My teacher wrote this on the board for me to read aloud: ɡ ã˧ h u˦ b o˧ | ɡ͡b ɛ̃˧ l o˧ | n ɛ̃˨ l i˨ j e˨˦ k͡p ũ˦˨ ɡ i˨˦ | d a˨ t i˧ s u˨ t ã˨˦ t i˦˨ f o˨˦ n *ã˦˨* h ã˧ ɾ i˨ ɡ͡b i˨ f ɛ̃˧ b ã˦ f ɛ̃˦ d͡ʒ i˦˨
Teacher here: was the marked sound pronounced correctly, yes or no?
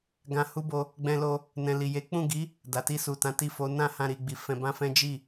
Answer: yes